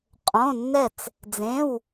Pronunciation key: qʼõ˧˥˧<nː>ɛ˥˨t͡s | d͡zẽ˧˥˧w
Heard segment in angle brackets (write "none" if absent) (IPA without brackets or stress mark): nː